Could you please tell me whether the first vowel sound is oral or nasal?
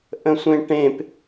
nasal